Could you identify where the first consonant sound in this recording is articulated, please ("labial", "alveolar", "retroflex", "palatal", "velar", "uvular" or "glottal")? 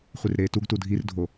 uvular